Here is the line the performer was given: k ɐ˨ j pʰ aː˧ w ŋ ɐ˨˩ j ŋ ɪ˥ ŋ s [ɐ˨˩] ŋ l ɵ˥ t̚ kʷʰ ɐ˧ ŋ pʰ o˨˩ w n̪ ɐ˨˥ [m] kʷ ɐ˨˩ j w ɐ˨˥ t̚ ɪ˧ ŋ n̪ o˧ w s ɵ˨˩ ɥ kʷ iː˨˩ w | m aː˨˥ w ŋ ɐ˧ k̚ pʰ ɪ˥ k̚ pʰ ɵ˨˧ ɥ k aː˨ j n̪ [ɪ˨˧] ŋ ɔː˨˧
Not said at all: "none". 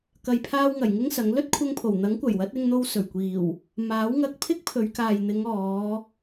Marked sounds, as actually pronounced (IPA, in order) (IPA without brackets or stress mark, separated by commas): ɐ˨˥, ŋ, ɪ˨˧